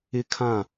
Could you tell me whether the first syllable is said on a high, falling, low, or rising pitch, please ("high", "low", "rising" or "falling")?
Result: high